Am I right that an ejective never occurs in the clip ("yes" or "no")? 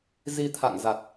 yes